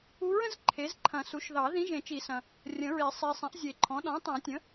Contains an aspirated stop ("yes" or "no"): yes